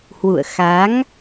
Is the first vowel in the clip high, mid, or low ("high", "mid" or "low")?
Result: high